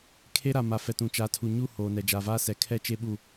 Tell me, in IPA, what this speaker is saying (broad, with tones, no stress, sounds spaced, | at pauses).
kʰ e˦ ɾ a˨ m a˨ f ɛ˨ t ũ˨ t͡ʃ a˨˦ tʰ u˨ ɲ u˦˨ h oː˨ n ɛ˨ d͡ʒ aː˨ v aː˦ s ɛ˨ kʰ ɛ˦˨ t͡ʃ e˦ ɓ u˦˨